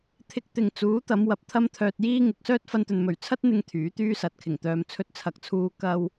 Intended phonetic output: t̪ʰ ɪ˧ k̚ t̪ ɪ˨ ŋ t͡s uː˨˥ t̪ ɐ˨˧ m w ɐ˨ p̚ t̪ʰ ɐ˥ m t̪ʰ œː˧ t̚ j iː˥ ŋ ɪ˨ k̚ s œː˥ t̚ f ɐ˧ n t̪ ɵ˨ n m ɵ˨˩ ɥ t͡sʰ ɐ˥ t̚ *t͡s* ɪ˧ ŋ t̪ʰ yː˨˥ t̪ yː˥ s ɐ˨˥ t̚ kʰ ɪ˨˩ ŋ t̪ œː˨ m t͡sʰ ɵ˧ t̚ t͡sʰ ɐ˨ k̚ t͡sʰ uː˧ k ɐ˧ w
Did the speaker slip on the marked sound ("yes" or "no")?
yes